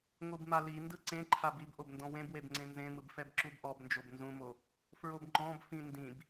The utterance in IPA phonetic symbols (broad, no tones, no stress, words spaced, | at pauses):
ŋʷɯbmalindɯ ǀẽǃʰab ibʔob ndɔ̃wẽbweb ŋ͡ǀẽnzẽmɯb fɛbǁubʔɔbnd͡ʒob nzũmo | fɹobŋ͡ǃɔ̃bfĩ ndĩb